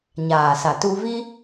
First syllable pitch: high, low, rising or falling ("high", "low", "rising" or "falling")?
low